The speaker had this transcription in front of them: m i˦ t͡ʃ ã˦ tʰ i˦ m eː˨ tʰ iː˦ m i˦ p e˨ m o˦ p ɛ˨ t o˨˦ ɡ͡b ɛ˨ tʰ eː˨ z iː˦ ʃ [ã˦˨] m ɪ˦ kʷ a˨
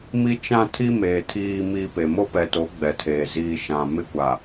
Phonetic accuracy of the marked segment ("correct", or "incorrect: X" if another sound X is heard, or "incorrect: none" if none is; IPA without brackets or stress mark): incorrect: ã˨